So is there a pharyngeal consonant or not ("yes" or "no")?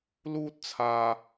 no